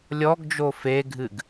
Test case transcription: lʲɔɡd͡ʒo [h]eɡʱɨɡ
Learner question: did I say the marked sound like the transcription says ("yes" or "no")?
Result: no